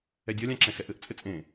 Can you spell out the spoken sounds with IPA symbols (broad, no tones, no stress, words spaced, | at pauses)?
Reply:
ɛdʲɒlʲãǁɛ̃ xɛʔɘʔt͡sʼɘ t͡sʼẽ